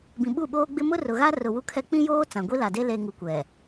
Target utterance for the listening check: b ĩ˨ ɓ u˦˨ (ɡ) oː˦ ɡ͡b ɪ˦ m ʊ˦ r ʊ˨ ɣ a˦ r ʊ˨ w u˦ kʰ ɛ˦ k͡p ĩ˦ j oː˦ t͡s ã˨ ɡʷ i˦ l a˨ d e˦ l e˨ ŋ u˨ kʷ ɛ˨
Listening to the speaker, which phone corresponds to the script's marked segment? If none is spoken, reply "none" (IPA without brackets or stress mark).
ɓ